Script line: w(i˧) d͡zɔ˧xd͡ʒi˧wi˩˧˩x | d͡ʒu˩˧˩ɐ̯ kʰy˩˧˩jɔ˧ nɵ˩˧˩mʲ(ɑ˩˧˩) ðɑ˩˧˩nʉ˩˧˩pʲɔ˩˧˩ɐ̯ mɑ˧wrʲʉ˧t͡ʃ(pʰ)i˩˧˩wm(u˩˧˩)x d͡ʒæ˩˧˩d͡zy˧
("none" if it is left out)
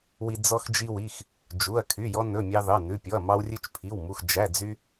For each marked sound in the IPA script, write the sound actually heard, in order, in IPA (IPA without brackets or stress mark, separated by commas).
i˧, ɑ˧, pʰ, u˩˧˩